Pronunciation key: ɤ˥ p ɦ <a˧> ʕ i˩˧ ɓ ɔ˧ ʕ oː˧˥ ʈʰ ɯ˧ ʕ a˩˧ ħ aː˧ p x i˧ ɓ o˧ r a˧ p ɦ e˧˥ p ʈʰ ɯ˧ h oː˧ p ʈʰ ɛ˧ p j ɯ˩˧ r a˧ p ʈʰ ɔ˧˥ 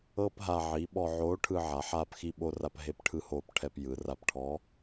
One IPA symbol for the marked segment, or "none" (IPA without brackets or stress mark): a˧